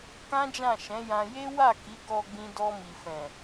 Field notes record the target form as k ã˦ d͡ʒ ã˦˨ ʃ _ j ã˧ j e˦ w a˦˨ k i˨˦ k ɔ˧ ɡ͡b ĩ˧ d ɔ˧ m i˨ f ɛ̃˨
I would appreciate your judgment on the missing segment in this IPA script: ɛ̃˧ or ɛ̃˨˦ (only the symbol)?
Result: ɛ̃˨˦